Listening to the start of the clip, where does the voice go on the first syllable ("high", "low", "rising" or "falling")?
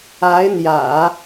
rising